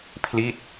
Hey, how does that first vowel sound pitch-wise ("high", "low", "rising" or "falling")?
falling